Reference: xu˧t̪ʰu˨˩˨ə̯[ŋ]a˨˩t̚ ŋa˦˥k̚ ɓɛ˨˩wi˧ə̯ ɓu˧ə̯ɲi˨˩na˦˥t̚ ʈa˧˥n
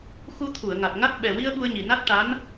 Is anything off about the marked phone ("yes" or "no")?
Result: no